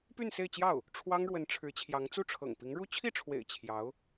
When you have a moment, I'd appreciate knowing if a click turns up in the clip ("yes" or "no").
no